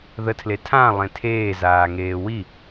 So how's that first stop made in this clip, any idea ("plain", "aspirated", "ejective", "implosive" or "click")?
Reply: aspirated